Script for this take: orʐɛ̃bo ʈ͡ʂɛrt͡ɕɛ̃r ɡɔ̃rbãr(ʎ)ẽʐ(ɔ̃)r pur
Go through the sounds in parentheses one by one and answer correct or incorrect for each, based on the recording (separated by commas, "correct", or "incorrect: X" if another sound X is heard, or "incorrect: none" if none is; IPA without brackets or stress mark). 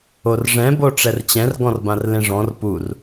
incorrect: l, correct